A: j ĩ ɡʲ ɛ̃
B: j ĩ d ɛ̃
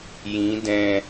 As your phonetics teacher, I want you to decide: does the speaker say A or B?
B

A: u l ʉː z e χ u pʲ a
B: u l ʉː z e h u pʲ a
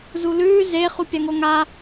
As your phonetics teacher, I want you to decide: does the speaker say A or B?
A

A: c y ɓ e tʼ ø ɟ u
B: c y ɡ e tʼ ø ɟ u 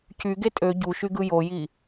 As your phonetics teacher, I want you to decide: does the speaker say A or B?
B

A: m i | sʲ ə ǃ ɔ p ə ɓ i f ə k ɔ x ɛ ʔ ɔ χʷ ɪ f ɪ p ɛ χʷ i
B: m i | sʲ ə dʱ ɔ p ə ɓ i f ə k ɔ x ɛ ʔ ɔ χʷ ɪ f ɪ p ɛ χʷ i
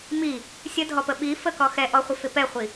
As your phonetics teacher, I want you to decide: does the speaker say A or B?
B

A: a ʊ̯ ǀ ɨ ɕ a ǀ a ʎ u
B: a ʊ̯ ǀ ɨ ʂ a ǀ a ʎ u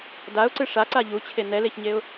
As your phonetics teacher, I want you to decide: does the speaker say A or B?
B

